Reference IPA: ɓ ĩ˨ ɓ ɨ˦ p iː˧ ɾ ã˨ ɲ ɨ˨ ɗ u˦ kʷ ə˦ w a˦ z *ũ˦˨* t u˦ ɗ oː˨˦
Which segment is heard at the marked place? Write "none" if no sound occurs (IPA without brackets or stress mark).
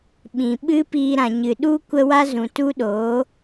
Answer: ũ˨